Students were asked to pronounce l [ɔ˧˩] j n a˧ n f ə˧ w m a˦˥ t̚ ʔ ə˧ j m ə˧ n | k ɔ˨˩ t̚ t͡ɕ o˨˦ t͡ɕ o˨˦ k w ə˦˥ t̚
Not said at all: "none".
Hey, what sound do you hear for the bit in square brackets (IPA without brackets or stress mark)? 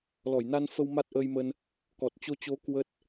ɔ˧˩